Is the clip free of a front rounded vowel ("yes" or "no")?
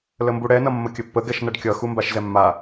yes